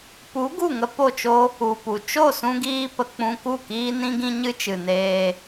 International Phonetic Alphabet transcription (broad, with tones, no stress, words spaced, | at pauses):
pu˨˦ ɡu˦˨ŋə˧ po˦˨t͡ʃo˦ | u˨pu˨ t͡ʃo˦˨sũ˧ɡiː˧pə˨ k͡pũ˧ku˦˨ kiː˦nĩ˦ɡĩ˦ ɲɨ˦t͡ʃɨ˨neː˧